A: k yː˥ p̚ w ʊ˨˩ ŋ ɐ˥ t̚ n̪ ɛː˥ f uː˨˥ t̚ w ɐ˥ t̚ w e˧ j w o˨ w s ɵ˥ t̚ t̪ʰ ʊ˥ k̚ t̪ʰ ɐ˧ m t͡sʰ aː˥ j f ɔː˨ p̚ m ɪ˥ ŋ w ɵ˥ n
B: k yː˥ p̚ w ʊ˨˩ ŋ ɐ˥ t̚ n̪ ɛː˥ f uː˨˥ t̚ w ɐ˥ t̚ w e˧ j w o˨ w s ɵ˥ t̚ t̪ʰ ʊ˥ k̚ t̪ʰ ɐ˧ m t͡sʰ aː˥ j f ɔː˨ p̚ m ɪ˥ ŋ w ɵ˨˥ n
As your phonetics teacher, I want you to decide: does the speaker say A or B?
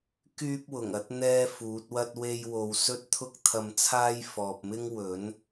B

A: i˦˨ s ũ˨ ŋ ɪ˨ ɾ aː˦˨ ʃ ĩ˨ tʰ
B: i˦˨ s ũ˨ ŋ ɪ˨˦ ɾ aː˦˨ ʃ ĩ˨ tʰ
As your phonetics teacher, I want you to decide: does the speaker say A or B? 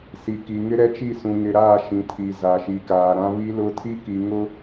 A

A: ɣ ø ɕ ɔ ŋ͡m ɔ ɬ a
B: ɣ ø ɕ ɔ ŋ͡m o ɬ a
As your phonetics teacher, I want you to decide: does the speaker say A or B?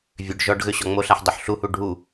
B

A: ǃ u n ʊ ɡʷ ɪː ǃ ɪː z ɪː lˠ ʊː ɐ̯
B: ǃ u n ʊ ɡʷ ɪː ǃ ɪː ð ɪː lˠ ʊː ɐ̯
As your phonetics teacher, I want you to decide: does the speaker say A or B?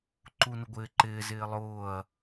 A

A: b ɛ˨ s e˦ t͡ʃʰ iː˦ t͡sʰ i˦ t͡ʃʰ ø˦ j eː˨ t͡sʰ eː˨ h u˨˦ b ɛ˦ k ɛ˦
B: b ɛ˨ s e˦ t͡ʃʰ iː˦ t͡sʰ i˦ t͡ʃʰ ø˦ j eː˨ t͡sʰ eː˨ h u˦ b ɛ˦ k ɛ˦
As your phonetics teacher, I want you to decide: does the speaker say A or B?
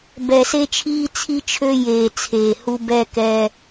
B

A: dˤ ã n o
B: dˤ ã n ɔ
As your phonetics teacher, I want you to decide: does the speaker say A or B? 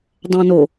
A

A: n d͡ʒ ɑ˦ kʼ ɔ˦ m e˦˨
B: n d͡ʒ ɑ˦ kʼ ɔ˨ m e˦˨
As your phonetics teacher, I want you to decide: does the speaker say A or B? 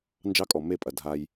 B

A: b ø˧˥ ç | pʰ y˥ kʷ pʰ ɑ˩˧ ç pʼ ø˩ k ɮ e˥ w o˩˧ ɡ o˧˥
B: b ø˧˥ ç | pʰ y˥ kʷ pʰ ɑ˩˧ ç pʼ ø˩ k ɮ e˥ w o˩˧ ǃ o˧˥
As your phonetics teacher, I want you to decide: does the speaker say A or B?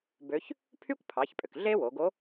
A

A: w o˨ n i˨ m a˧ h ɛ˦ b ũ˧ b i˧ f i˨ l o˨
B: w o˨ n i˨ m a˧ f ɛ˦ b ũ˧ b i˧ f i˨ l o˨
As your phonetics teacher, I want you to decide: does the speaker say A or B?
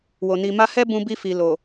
A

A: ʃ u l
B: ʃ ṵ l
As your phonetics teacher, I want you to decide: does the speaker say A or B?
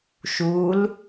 A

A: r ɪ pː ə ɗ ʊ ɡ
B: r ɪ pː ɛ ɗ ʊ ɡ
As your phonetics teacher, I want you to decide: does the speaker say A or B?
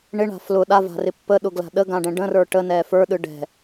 A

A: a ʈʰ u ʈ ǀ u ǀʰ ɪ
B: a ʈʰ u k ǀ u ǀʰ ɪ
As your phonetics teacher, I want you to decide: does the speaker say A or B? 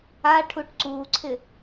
A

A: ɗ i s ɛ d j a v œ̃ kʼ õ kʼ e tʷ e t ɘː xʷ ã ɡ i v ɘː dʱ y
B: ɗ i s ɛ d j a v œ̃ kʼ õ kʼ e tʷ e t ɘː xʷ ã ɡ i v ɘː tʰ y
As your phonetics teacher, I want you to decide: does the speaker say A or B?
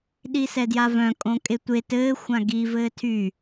B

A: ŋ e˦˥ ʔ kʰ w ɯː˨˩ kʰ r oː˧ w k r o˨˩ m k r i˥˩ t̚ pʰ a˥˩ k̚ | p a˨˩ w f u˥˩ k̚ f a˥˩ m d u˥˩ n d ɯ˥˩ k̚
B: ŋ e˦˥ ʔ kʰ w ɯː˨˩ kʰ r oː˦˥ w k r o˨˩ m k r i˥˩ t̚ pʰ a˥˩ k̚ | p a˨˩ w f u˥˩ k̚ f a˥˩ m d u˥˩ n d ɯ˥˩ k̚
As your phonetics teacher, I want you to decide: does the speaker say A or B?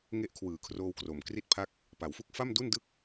A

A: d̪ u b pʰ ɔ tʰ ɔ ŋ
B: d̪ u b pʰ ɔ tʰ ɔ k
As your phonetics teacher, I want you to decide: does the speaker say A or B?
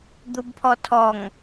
A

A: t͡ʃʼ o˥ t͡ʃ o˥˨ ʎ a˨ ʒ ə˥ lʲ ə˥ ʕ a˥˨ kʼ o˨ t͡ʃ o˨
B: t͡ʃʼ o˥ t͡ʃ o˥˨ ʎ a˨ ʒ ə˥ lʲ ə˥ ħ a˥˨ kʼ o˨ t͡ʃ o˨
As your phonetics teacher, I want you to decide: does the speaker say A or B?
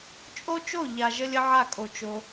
A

